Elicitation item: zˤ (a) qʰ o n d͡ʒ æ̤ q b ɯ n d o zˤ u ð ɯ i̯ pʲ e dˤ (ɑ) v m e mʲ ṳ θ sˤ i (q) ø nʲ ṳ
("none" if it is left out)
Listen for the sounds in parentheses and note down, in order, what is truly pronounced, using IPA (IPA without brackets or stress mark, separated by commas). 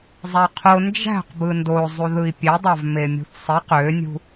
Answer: æ, ɑ, q